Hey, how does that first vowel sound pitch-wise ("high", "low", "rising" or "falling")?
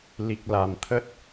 low